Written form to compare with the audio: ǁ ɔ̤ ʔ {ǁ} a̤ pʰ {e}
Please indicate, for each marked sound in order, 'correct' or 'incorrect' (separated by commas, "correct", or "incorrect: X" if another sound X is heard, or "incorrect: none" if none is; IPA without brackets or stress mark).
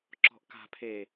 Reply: incorrect: k, correct